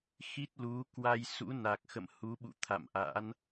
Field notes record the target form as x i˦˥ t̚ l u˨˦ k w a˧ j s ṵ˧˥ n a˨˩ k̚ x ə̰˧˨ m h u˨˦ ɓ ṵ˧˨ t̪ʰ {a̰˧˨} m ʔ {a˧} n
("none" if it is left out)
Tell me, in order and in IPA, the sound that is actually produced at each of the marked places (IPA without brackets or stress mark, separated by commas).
a̰˧˨, a̰˧˥